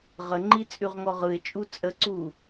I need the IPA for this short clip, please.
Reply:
ʁəŋ͡ǃi t͡sʼʉʁŋɔʁɯɪ̯t͡ʃʼu t͡sʼəǀu

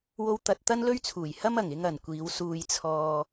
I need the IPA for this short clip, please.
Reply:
wo˥wt̪ɐ˧t̚ t̪ɐ˥nlɵ˥ɥt͡sʰuː˨˩jhɐ˥m ɐ˨˩ŋɪ˧ŋɐ˨˩n kʷiː˨˧wsuː˧jt͡sʰɔː˧

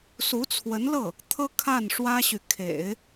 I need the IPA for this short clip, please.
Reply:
su˧˥t͡sʰwə˧˥nlɤ˥˩ | t̪ʰɤ˥kʰa˥˩nʂwä˥ɕy˨ kʰḛ˨˩˦ɪ̯

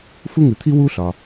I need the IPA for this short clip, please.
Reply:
fu˥ŋʉ˩t̪ʰi˥ wu˥ɬɒ˩

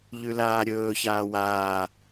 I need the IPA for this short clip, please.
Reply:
ʎʉlaːɾʲɵːçaː waː

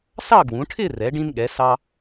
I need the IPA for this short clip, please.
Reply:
sɑ˥˧ɡwũ˩˧ʈʰɪː˥˧rɛ˩˧ ɖĩ˧nɠɛ˩˧ sɑ˧

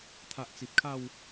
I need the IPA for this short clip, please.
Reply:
t̪ʰa˨ʔ t͡si˨p̚ kʰa˥˧w

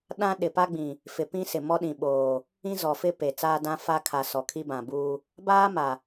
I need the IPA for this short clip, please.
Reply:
ɗã˦ ɗɪ˨pa˦ɡ͡bĩ˨ | fɪ˨ pĩ˦sɪ˨mɔ˦ ɗĩ˨ɓoː˨ | ĩ˦zɔ˨fɪ˦ pe˨ t͡saː˦ dã˦ fa˦kʰa˨ sɔ˨kʰi˦bã˨buː˦ | baː˦ma˨

